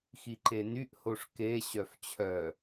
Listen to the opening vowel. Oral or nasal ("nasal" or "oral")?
oral